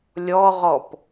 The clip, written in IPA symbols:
lʲ ɔ ʁ ɔ p

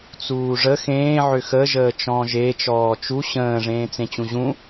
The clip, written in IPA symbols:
t͡s uː ʐ ə x ẽː ʕ ʏ x ə ʒ əː t͡ʃ ɔ̃ː ʒ e t͡ʃ ɔː t͡ʃ u ɕ ə̃ː ʐ ẽː t͡s ẽ t͡ɕ ũ ʑ ũ

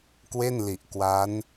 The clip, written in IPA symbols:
k w e˥˩ n l i˨˩ ʔ k w a˦˥ n

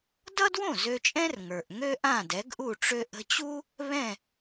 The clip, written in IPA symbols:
d ʌ˥ d w õ˥˩ z ø˧ t͡ʃʼ ɛ̃˥ r ŋ ə˞˩ ʔ ŋ ø˥ ʔ ã˥˩ d ɛ˩˥ ɡ ʔ u˥˩ ʈ͡ʂ ø˧ ʔ ə̤˧ t͡ɕ u˥ | β ɛ̃˥˩

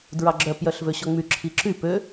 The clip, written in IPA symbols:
d ɹ ɑ ɡ͡ǁ œ p j œ ɬ v ø ɕ ɔ ŋ͡m y ǁʰ i ǁ y p ø

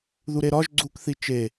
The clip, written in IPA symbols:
ð u ɾ e ɾ ɒ ʒ ɡ͡ǀ u k θ i t͡ʃ e

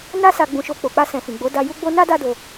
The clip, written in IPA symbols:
n a˦ s a˧ ɡ͡b ũ˧ ʃ o˧ k͡p o˨ k͡p a˧ s ɛ̃˨ f ĩ˨ ɡ͡b o˨˦ d a˧ j u˦ ɡ͡b o˦ n a˦ d a˦ d o˧

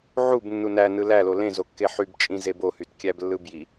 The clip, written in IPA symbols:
ʕ u b nː u n æ n ɯ l æ l o l ẽ z o kː e ħ y b t͡ʃʼ ĩ z e b o h y t kʲ æ b lː ɯ b j i

